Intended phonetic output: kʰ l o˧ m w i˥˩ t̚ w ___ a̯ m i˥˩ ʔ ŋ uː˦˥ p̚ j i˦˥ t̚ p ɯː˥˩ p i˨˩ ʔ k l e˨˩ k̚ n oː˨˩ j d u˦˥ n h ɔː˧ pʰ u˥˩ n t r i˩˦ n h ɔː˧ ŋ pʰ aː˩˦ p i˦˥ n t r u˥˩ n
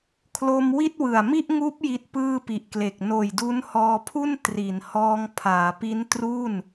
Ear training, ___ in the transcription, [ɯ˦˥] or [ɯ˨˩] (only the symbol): ɯ˨˩